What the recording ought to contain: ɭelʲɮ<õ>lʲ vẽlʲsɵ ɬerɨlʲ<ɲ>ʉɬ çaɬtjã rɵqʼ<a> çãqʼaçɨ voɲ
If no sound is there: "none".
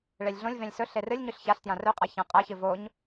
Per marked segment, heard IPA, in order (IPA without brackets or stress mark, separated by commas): õ, ɲ, a